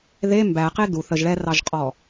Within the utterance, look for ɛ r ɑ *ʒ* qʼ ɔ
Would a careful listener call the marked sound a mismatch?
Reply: no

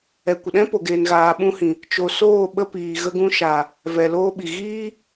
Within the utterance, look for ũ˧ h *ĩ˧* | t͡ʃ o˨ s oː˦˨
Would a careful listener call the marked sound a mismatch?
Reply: yes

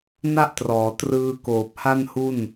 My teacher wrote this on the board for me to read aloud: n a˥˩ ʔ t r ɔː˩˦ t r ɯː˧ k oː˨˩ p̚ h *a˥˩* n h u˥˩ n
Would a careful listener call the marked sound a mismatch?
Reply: no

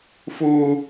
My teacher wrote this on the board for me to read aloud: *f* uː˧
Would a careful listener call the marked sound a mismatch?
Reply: no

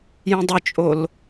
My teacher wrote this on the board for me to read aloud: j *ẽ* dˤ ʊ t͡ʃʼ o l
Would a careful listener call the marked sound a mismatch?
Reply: no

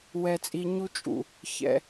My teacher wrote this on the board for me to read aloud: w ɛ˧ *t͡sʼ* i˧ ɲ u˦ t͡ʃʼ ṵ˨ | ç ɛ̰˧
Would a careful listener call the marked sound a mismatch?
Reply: no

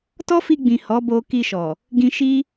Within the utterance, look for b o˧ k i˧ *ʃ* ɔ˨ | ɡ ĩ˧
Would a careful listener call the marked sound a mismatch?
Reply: no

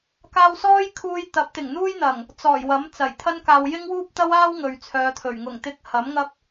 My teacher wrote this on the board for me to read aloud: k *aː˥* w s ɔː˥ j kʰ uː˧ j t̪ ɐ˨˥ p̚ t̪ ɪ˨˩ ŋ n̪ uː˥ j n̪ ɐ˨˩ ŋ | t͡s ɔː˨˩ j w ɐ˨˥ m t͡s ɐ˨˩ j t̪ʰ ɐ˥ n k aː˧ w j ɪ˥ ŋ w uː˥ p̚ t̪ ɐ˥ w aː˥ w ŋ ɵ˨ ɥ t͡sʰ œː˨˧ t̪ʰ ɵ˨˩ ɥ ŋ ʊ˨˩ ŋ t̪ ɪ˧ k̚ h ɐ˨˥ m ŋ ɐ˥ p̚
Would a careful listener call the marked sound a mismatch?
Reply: yes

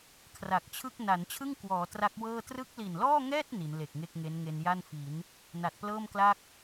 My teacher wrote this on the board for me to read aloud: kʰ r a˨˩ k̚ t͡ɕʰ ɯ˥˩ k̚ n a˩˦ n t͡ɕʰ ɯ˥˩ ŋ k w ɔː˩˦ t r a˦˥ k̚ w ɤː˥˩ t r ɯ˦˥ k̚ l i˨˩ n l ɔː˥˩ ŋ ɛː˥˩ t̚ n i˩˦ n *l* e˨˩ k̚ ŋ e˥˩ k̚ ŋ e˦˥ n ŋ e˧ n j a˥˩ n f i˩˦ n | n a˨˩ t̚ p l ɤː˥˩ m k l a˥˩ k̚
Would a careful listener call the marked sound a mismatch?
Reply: no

